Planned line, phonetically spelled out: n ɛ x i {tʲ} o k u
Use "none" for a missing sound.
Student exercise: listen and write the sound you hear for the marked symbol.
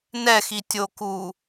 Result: tʲ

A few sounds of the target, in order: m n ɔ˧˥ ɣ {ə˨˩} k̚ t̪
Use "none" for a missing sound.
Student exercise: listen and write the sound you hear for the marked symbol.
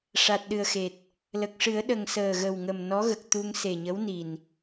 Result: ə˨˩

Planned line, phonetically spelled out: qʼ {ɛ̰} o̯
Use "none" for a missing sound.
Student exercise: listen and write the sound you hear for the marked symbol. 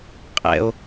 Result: ɛ̰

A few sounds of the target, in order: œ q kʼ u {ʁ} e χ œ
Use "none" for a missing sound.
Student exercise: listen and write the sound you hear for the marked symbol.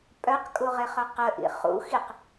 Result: ʁ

